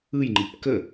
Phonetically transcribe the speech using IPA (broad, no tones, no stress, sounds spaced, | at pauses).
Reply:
ɯ j ŋ͡ǃ i p k ə